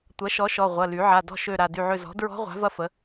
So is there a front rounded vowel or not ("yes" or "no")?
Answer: yes